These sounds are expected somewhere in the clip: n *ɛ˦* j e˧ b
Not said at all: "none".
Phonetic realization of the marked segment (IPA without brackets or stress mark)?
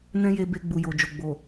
ɛ̃˦